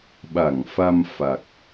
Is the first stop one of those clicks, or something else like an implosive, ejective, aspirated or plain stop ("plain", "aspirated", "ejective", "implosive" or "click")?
implosive